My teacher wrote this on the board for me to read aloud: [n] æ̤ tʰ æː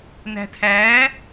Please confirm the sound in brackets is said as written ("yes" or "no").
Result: yes